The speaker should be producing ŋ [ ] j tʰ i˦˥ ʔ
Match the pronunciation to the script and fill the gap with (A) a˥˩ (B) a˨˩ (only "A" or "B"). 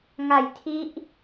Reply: B